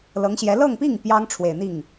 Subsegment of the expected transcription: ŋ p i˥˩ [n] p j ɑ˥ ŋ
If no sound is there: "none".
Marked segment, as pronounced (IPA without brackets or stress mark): ŋ